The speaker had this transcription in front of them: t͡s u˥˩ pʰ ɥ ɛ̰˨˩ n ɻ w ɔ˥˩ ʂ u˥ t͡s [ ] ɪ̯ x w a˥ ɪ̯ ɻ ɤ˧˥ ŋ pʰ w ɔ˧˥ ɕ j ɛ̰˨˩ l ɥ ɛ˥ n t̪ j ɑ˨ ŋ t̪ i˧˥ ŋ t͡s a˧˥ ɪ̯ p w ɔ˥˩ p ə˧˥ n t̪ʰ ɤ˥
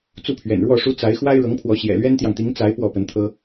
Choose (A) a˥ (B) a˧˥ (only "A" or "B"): B